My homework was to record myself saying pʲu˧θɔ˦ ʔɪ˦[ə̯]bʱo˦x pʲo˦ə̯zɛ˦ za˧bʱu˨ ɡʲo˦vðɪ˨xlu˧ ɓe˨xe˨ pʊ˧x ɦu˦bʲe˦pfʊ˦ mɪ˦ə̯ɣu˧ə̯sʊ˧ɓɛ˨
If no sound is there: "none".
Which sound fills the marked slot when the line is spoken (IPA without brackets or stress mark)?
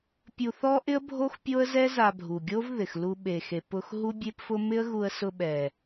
ə̯